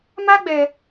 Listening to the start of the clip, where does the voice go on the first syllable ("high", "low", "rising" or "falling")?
high